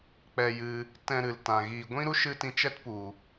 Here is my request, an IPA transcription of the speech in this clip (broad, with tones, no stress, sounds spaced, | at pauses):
k͡p ɛ˧ j ɨ˧ | t ɛ̃˧ ɾ ɨ˨ l t ã˨ ɣ iː˨ ɡʷ ĩ˦ ɾ u˦ ʃ ɨ˦ t ĩ˧ t͡ʃ ɛ˦ t p u˨